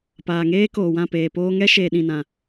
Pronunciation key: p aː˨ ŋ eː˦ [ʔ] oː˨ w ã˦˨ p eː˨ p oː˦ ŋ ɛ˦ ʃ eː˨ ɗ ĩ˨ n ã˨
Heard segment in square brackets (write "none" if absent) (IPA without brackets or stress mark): k